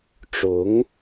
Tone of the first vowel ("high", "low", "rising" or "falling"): rising